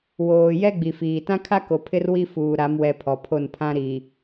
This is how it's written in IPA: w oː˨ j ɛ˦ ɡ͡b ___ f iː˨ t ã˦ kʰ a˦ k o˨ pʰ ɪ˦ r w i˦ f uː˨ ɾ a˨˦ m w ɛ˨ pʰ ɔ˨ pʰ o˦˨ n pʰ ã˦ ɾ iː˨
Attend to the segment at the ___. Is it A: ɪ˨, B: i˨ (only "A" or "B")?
B